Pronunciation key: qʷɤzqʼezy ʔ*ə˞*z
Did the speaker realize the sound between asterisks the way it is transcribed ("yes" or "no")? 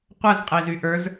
yes